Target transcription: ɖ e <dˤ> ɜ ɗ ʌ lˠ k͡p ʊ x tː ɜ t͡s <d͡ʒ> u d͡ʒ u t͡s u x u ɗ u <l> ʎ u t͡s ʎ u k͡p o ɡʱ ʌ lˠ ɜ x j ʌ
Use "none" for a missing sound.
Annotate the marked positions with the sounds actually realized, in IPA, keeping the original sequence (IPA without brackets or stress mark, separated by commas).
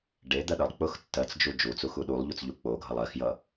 d̪, d͡ʒ, lˠ